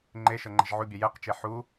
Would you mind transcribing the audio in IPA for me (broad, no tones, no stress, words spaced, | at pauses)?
ŋ͡ǃe ʃɤŋ͡ǃɛ̤ʒʕubʲɛ jɛqt͡ʃe ħu